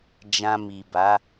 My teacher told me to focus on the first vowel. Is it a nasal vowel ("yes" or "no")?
yes